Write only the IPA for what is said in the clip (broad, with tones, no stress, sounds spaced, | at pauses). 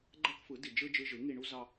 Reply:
ɡ͡ǃ æ˦ k f ɯ˨˦ d i˨ d͡ʒ ɯ˦ d͡ʒ ɯ˧ ʒ ɯ˨˦ ŋ i˧ ɳ u˦ z ɑ˦